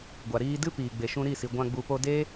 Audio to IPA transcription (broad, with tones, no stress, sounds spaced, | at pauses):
ɡʷ a˨ ɾ iː˧ d ɨ˦ p iː˨ ɡ͡b e˨ ʃ ũ˧ ɾ i˦˨ s i˨ ɡʷ ã˧ ɡ͡b u˨ p o˧ d e˦